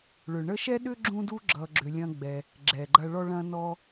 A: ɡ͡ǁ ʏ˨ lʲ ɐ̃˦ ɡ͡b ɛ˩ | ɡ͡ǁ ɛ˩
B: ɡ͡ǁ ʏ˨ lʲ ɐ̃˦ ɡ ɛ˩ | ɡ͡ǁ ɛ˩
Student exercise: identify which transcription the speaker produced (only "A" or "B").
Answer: A